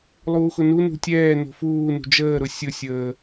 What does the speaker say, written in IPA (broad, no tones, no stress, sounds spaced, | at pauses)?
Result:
lˠ uː x ʊ n u n ṳ tʲ ɛː n o̤ f uː n ṳ d͡ʒ əː ɾ ʊ sʲ ʊ sʲ əː